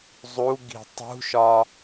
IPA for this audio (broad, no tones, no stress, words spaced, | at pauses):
zˤuɡi̤ tˤṳʃɒ